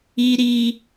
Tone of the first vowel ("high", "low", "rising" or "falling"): high